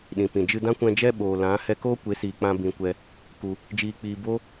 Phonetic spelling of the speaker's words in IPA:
ɗ ĩ˨ p ĩ˨ d͡ʒ ɨ˧ d ã˦ kʷ ɛ̃˧ d͡ʒ ɛ˦ ɓ oː˨ l ã˨˦ h ɛ˧ k oː˦ kʷ e˨˦ s iː˨ k͡p ã˧ b ĩ˧ kʷ ɛ˦ | k u˧ | d͡ʒ iː˧ k͡p iː˧ b o˦

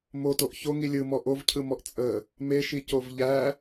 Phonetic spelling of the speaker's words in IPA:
m o t o ʔ ç o ŋ i lʲ ɯ m ɔ ʔ o v cʰ ɯ m ɔ ʔ t͡sʼ ə | m e ʃ i c o v ʎ æ

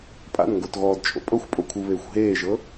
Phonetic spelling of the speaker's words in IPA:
pʼ a̰ n ŋ ɡ o t ɣ ɔː d t͡ʃʼ o̰ pʼ ɤ xʷ pʼ o kʷʰ ɯ β eː xʷ ɦ eː ʒ ɤ

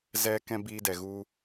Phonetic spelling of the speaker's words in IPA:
z ɛ˧ k ɛ̃˧ b iː˦ d ɛ˨ ɣ u˦

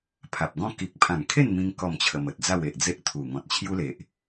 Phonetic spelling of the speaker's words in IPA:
pʰ a˨ p̚ ɡ ɔ̃˦ k i˨ k̚ pʰ ã˨˩ ŋ kʰ e˥˧ n m ĩ˧ ŋ k ɔ˥˧ m t͡ɕʰ ə˧ m ə˨ t̚ d͡z a˥˧ w e˨ ʔ d͡z e˦ ʔ t̪ʰ u˨˩ ŋ ɔ̃˨ t̚ t͡ɕʰ j u˦ l e˨ ʔ

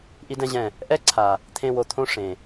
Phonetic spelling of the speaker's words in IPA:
ʔ i˦ d ɛ̃˦ ʑ ɛ̃˦˨ | ʔ ɛ˦ ǀʰ a˨ | t̪ʰ ẽ˧ w o˨ t̪ʰ õ˦ ʂ ẽ˨

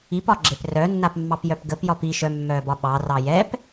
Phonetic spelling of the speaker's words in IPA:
i p ɒ ɡ͡ǁ e p r œ nː a p mː ɑ p j œ p ɡ ə p j ɒ p i ʃ œ mː œː b ɒ ɓ ɑ r ɑ j ɛ p

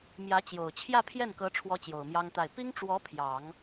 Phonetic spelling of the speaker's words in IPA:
m j ä˧˥ t͡ɕ j o˨˩ ʊ̯ t͡ɕʰ j ä˥˧ pʰ j ɛ˥˩ n k ɤ˧˥ ʈ͡ʂʰ w ɔ˥ t͡ɕ j o˨˩ ʊ̯ m j ɑ˥ ŋ t̪ a˥˩ ɪ̯ p i˥ ŋ ʈ͡ʂ w ɔ˧˥ pʰ j ɑ˨˩˦ ŋ

